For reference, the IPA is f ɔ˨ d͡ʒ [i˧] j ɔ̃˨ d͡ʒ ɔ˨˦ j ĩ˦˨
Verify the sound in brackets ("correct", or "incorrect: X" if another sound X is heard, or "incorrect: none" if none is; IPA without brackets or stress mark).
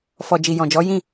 incorrect: i˨